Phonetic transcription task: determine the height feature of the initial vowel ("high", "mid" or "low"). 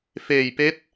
mid